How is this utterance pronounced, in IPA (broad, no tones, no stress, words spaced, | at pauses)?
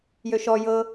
jøʃɔ jɤ